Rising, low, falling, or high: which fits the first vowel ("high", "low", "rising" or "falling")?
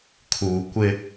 low